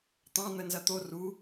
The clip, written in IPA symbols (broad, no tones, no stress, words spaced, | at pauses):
t̪ɑ̃ n̪ənzɐt̪o ru